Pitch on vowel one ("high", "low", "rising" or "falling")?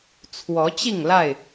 rising